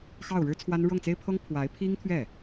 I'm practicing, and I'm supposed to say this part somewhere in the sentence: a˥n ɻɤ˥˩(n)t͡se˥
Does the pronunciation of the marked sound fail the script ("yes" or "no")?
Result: yes